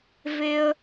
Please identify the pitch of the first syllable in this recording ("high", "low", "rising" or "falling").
high